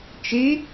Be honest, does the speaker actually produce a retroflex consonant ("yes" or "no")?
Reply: no